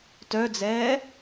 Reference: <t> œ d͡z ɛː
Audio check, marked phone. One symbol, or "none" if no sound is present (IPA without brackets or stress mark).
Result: t